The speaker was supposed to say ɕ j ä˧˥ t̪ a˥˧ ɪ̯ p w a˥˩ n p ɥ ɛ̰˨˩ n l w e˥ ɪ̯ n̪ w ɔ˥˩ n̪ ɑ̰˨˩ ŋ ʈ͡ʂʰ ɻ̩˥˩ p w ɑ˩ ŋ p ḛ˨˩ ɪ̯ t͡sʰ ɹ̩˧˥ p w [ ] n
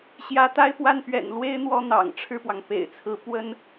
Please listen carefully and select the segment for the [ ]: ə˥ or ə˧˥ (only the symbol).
ə˥